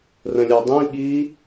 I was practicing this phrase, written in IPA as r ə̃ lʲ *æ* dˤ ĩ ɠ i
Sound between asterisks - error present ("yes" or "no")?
no